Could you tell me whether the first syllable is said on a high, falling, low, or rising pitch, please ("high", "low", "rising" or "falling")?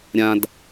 low